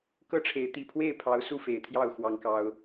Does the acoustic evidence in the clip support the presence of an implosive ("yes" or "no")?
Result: no